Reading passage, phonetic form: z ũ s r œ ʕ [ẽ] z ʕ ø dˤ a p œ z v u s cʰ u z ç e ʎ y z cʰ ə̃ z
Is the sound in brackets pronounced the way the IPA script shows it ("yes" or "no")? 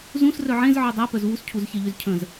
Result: yes